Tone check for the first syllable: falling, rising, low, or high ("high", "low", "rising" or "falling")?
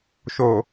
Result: low